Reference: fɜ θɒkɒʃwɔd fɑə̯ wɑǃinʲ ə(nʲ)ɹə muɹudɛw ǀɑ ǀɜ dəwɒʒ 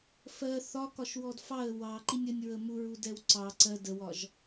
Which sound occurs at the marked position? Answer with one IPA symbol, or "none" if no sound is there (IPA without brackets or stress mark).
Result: nʲ